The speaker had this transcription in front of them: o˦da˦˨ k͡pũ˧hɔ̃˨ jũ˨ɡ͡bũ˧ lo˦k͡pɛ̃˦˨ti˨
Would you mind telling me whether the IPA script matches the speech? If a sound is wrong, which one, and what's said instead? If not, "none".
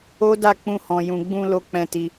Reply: i˨ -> i˧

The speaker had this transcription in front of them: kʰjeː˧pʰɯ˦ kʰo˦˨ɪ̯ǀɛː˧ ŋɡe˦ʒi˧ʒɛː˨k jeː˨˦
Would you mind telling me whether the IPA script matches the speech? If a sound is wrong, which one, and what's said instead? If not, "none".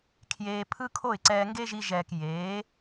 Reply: none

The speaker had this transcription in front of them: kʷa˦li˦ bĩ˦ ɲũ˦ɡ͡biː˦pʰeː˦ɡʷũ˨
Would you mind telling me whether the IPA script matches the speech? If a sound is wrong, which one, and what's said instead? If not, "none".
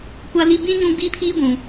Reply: eː˦ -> iː˦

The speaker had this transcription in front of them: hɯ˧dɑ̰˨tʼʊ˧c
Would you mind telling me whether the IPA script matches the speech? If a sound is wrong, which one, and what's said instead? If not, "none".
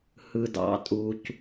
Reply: ʊ˧ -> u˧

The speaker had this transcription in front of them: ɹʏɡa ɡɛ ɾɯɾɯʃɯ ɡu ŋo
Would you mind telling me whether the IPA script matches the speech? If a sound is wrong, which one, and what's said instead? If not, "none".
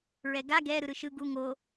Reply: ʏ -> ɛ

